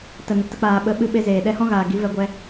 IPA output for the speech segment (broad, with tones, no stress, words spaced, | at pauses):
tə˨nə˨ tə˧k͡paː˨ɓə˨˦ ɓɨ˧ɓe˧zeː˨ ɗɛ˧hɔ̃˦ɣaː˨ ɡi˨˦vɛ˧ɡʷɛ˧